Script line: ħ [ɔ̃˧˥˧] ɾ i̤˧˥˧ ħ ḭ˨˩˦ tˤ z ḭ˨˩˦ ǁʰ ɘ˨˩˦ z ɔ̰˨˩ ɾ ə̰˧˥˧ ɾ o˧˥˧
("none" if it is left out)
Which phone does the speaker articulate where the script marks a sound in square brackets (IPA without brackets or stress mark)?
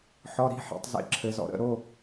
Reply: ɔ˧˥˧